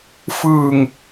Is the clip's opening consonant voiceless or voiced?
voiceless